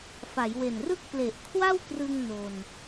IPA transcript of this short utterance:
f a˩˦ j w e˨˩ n r ɯ˥˩ k̚ p l e˨˩ ʔ kʰ w a˥˩ w k r ɯ˧ ŋ n o˧ n

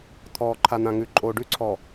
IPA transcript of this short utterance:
t̪ʰ ɔː˨ ǃʰ a˨ n̪ ã˨ ŋ ʉ˨ ǃʼ oː˨ ɖ ʉ˦ ǀʰ ɔ˨

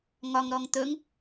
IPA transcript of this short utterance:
ŋ ɒ ŋ ɾ ɔ ŋ t̪ ɵ ŋ

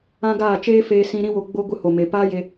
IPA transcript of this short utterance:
ã˦ ɡ aː˦˨ t͡ʃ eː˦ f eː˧ s ĩ˧ ɾ ĩ˦ w o˧ ɡ͡b o˦ ɡʷ ɨ˧ h o˨ m e˨ p aː˦ j e˧

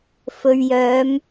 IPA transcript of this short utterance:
f ɵ˨ ɥ j œː˨˧ m

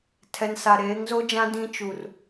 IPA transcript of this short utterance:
tʰ ɛ˨ n s a˨ ɾ eː˨˦ ŋ z o˦ d͡ʒ ã˦ d ĩ˦ t͡ʃ u˨ r

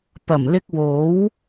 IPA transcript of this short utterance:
p ɐ˨˩ m l ɪ˧ k̚ w o˨˥ w

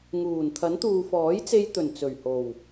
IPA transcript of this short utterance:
ŋ uː˨˩ n t̪ʰ ɐ˨˥ n t̪ uː˨ f ɔː˨˥ j t͡s e˧ j t̪ ɵ˨˩ n t͡s ɵ˨˩ ɥ h o˨˩ w

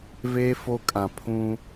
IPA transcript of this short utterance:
v e˦ f o˦ kʼ ã˨ pʰ ũ˦

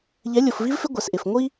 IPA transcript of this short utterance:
ʎ ɛ˨˦ lʲ o˨ f v i˦ v f ɪ˦ ɡʷ ɛ˨ s ʔ ɪ˨ f ŋʷ i˦

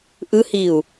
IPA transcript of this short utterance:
ʔ ɯ h i u̯

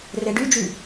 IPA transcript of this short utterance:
r e ɖ y d͡ʒ y

